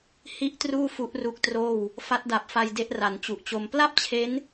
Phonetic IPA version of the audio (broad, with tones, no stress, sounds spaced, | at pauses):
h i˥˩ ʔ t r uː˥˩ f u˦˥ ʔ r u˦˥ k̚ t r oː˥˩ w | f a˦˥ t̚ d a˨˩ p̚ f a˧ j d e˦˥ ʔ r a˩˦ n t͡ɕ u˨˩ ʔ t͡ɕ o˧ m p l a˥˩ p̚ t͡ɕʰ e˦˥ n